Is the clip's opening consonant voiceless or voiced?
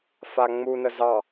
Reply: voiceless